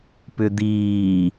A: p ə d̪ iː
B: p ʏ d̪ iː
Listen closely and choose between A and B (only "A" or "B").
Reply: B